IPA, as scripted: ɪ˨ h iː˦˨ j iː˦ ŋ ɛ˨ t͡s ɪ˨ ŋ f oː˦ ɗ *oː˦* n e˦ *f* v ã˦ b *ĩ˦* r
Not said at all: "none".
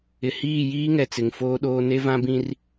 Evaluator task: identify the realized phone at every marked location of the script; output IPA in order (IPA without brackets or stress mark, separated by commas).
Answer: oː˦, none, ĩ˦